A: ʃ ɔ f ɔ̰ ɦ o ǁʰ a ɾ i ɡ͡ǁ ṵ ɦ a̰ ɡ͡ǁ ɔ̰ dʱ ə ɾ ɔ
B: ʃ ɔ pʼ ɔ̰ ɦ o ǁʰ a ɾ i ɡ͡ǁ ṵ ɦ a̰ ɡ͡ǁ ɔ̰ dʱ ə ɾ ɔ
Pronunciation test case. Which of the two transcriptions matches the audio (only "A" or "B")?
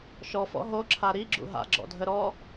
A